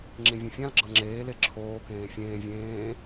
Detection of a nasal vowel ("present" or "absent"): present